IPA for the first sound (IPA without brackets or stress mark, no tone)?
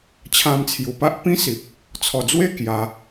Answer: t͡ɕʰ